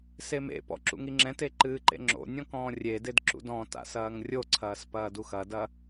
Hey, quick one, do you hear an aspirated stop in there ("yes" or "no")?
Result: yes